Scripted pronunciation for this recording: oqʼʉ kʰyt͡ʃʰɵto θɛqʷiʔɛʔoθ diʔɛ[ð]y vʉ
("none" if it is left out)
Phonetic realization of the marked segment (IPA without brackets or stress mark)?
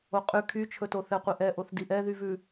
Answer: ð